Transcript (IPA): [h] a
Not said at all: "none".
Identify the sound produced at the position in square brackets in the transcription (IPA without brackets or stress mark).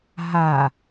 ɦ